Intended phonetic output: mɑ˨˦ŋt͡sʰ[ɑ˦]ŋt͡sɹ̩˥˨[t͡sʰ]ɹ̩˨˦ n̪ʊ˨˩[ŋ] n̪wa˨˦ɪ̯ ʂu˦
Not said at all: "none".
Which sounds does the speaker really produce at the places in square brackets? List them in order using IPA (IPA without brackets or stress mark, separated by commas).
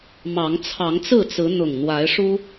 ɑ˨˦, t͡s, ŋ